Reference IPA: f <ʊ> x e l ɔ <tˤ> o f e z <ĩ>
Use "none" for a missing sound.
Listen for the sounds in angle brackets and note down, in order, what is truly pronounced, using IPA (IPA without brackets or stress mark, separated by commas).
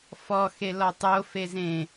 ɔ, tˤ, ẽ